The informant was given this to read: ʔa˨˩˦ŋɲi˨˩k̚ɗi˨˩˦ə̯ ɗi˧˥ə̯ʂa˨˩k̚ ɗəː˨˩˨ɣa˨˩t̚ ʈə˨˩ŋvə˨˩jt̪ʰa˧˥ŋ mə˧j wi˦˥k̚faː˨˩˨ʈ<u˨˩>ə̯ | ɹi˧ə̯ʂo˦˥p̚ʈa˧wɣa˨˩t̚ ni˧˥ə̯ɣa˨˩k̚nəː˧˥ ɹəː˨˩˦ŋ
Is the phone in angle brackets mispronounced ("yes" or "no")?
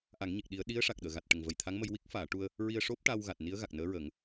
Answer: yes